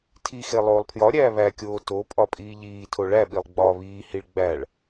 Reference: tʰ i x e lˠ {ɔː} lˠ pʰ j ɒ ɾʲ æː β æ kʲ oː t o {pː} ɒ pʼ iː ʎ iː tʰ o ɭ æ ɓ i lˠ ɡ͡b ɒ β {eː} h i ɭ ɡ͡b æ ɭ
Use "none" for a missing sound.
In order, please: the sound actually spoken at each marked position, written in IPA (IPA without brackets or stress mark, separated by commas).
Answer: oː, pʼ, iː